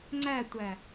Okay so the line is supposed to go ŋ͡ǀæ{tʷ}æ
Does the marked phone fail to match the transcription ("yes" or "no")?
no